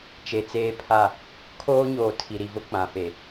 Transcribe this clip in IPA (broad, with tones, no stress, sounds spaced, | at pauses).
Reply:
t͡ʃ e˨ t͡s eː˦ pʰ a˦˨ | kʰ oː˦ ɲ oː˨ tʰ i˨ ɾ i˨ v ʊ˦ k͡p ã˨ f e˨